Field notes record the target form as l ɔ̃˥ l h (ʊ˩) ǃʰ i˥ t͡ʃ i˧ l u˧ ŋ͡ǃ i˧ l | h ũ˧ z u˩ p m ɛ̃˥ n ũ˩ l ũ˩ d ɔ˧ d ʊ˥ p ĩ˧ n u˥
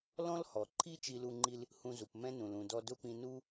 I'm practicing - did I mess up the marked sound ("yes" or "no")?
yes